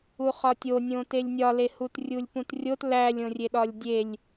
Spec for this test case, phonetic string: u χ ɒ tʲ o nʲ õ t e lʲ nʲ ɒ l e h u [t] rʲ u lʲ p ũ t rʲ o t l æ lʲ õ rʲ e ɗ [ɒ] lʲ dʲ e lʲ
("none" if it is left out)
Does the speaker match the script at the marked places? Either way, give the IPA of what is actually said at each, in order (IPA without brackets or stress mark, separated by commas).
t, ɒ